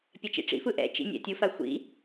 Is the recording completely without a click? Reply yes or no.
yes